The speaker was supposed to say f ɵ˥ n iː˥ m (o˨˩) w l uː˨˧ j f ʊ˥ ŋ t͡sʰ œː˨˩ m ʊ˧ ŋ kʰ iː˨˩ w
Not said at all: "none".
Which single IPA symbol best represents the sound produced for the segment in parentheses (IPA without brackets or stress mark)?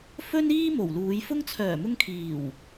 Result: o˨˩